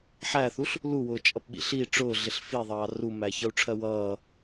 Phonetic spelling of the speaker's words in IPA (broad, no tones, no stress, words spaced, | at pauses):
ħæθuɬ | luwʊːt͡ʃʼʌpɓḭ ɬi ʈ͡ʂʊːɮɪɬ fiðˤɑː rumæçʌu̯ʈ͡ʂʰɜ wʌː